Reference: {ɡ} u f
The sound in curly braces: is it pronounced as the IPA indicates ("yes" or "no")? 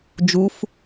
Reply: no